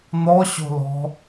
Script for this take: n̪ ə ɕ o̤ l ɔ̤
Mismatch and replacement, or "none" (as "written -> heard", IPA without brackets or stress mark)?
ə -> ɔ